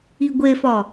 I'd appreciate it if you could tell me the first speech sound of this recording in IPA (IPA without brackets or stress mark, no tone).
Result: i